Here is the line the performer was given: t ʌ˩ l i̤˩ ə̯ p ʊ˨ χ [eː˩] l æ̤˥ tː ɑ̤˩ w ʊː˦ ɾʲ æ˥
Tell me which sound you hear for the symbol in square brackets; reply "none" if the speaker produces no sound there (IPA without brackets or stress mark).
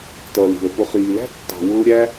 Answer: iː˩